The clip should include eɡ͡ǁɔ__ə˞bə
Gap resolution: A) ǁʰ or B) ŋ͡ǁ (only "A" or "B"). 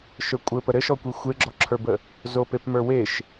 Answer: A